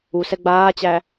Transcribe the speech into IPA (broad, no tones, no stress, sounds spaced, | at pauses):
u s ɛ ɡ͡b aː t͡ɕ æ